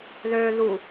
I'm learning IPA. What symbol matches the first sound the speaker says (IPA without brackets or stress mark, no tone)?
ð